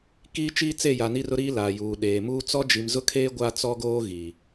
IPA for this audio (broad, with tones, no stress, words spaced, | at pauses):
kiː˦t͡ʃiː˦t͡se˦˨ja˨ ni˦rʊ˦ɾiː˦ la˨juː˨ɗeː˨ muː˦ t͡sɔ˦ d͡ʒi˨mzʊ˦kʰeː˦ ɡʷa˦ t͡sɔ˦ɡoː˦ ɣiː˨